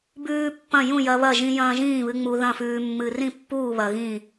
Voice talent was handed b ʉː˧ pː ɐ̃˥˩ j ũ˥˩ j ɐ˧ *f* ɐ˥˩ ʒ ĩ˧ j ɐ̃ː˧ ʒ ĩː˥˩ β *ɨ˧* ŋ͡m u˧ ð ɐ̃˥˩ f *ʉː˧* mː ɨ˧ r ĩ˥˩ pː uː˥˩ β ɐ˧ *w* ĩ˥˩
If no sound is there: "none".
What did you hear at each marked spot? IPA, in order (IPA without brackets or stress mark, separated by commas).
β, ɨ˧, ʉː˧, ɣ